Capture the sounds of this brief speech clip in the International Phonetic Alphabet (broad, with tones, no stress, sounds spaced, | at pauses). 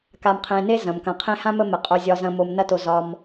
k a˨ m qʰ ẽ˨ n e˥ z ɐ̃˩ m k ɐ̃˩ qʰ ẽ˦ h ã˥ m ə˦ m ə˩ qʼ o˨ zʲ ɒ˨ z ɐ̃˨ m o˨ m n ɐ˦ t o˨ z ɒ˨ m